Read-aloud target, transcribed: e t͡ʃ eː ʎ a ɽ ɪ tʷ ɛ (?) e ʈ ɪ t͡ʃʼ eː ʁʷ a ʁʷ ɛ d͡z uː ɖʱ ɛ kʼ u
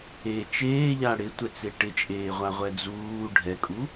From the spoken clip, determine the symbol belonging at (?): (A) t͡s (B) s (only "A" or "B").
A